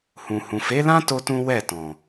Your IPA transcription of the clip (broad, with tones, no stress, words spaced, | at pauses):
hũ˨hũ˨fe˨˦lã˦ to˦tũ˦ wɛ˦˨tɔ̃˨